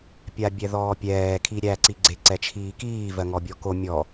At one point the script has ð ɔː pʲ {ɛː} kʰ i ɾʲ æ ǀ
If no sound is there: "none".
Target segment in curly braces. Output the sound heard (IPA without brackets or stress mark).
ɛː